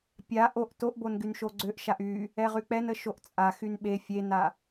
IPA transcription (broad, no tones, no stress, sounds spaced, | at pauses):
pʲ a ʔ o ʔ t o ʔ b o n ɡ y n ʃ o ɡ͡ǀ ø ʔ ʃ a ʔ y | ɛ ʁ y k͡p ɛ n ə ʃ o ʔ t͡sʼ a x y n ɓ e fʲ e n a